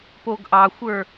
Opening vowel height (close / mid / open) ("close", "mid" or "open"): mid